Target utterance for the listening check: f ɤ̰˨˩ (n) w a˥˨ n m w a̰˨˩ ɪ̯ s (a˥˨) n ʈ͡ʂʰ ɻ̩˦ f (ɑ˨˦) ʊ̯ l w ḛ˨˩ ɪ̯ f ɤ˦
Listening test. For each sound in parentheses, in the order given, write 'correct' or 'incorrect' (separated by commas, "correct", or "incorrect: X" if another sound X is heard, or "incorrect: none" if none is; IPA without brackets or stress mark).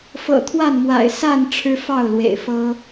incorrect: t̪ʰ, correct, incorrect: ɑ˥˨